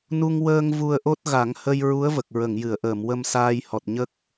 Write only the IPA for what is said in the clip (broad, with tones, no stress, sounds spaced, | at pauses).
n u˧ ŋ w əː˧ ŋ v u˧ ə̯ ʔ o˦˥ t̚ ɣ a˨˩˦ ŋ h ə˧ j ɹ u˧˥ ə̯ v ə˨˩ k̚ ɹ ə˨˩˨ ŋ j ɨ˨˩˨ ə̯ ʔ əː˨˩˨ m w ə˧ m s aː˧ j h ɔ˨˩ t̚ ɲ ə˦˥ k̚